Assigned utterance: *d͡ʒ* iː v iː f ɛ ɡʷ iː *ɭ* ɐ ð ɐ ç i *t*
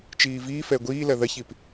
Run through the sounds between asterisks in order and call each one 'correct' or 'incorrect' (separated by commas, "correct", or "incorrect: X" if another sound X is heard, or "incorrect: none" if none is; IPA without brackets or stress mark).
incorrect: t͡ʃ, incorrect: l, incorrect: p